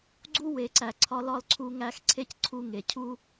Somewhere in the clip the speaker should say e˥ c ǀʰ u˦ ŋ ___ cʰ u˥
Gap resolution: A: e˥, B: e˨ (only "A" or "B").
B